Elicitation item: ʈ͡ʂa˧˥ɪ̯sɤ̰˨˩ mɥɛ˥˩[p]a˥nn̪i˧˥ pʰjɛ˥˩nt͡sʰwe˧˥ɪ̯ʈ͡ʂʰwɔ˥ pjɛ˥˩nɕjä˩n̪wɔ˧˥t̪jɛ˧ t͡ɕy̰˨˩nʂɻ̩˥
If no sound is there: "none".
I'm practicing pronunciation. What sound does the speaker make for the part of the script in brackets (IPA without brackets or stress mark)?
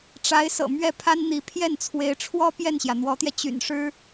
pʰ